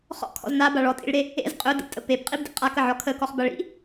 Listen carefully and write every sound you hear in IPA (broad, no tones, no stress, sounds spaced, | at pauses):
χ ɔ̰ kʰ ɔ̰ z n a b a ɭ ɔ tʼ ḭ ɭ ɾ e | ḛ z qʼ ɵ d ə̰ p tʼ ə p e p qʼ i b d ḛ qʼ a k ə ʕ ɔ kʰ ə k ɔ χ b a ɭ ḭ